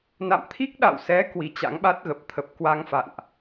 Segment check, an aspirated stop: present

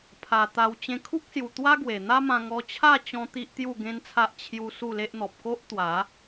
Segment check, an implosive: absent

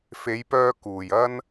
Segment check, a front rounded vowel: present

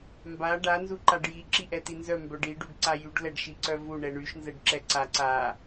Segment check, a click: present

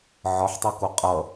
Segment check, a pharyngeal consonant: present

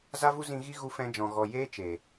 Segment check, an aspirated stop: absent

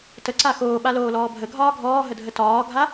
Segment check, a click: present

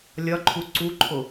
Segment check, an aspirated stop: present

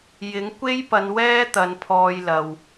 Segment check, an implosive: absent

